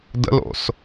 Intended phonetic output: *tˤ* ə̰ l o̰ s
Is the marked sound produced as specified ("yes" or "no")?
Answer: no